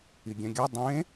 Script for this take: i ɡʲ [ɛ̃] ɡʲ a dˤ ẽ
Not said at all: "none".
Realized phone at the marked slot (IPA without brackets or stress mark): ɛ̃